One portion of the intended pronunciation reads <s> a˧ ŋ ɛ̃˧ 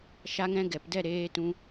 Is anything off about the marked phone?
yes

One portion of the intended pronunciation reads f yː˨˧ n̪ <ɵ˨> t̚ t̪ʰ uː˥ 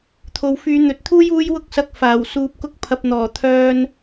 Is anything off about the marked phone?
no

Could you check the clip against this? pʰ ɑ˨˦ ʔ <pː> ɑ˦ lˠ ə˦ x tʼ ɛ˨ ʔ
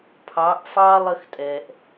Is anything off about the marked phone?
yes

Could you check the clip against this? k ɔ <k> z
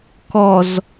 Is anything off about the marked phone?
yes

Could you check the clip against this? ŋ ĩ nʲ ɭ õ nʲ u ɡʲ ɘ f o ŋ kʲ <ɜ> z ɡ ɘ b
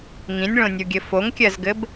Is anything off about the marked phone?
no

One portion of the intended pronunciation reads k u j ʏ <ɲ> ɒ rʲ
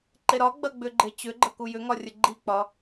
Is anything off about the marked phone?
yes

